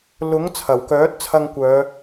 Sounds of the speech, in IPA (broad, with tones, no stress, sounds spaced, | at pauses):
l ʊ˨˥ ŋ t͡sʰ ɐ˨˩ w k œː˨˥ t̚ t͡sʰ ɐ˧ ŋ kʷ œː˨˧